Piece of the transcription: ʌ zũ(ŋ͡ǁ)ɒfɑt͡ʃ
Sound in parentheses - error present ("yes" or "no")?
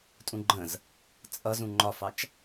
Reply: yes